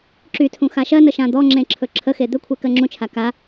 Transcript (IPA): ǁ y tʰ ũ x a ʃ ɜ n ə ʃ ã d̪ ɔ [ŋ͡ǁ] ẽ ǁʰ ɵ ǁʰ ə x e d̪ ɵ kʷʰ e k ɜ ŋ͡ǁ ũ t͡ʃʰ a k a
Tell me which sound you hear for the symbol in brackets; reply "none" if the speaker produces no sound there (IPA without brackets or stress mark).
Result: ŋ͡ǁ